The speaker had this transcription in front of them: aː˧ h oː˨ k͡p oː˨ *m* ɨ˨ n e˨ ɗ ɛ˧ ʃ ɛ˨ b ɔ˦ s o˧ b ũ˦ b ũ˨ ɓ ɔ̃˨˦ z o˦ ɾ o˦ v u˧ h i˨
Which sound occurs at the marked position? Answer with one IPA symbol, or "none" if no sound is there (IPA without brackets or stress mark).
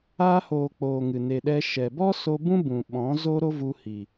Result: ŋ